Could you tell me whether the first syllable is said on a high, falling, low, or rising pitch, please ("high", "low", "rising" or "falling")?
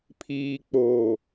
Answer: low